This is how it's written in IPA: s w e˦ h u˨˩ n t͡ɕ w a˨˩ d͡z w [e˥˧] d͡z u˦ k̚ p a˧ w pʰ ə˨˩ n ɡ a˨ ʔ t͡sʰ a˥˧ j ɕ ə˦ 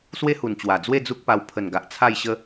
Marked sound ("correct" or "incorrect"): correct